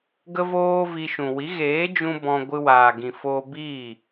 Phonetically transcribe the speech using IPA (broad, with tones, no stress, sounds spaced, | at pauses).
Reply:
ɡ ə˦ v oː˦ v i˧ ʃ ũ˨ w i˨˦ ɣ eː˨˦ d͡ʒ ũ˧ b ɔ̃˧ ɡʷ ɨ˧ w aː˨ ɡ ĩ˨ f oː˧ b iː˦˨